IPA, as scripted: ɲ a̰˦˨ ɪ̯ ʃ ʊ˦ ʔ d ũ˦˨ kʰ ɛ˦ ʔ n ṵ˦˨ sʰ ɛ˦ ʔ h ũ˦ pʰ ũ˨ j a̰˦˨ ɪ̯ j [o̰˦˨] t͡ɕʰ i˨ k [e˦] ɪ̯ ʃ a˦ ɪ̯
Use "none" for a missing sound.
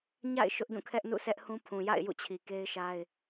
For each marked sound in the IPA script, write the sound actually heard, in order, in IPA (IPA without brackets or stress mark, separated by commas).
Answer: ṵ˦˨, e˦